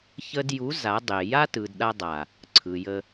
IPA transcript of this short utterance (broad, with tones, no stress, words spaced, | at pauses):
çə˧dju˨˦ za˨˦dˤe˨ ja˦tɯ˨dɗa˧ dˤa˨ | ǀʰɯ˨jə˧